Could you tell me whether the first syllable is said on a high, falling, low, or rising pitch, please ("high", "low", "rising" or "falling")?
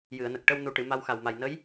low